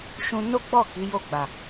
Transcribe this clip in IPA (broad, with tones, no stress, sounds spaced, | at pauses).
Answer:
ʃ ũ˧ n o˦ ɡ͡b ɔ˦˨ k i˨˦ j o˦˨ ɡ͡b a˨